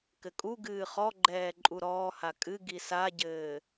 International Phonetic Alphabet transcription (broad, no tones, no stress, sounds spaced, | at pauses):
k ɘ kʼ u ɡ ɨː χ ɔ ɡ͡ǃ ɛː ǃʼ u ɾ ɔː h a kʼ ɨ ɡ i s a ɟ ɘː